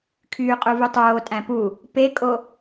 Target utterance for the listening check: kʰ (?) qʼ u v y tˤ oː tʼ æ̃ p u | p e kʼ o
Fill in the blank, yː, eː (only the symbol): yː